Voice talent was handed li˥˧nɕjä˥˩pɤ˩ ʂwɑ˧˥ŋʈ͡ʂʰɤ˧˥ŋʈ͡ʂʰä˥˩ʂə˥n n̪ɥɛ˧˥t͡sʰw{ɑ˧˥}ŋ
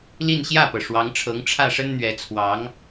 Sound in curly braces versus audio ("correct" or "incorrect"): correct